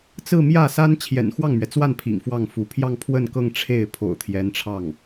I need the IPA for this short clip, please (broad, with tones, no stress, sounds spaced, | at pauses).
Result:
t͡s ɹ̩˥˧ m j ä˥˩ s a˥ n t͡ɕʰ j ɛ̰˨˩ n x w ɑ˥˩ ŋ m ɥ ɛ˩ t͡s w a˥˩ n pʰ ḭ˨˩ ŋ f w ɑ˥˩ ŋ f u˧˥ pʰ j ɑ˥˧ ŋ pʰ w ə˥˧ n k ɤ˥˧ ŋ ʈ͡ʂʰ e˥˩ ɪ̯ pʰ o̰˨˩ ʊ̯ t̪ʰ j ɛ˧˥ n ʈ͡ʂʰ ɑ˥˩ ŋ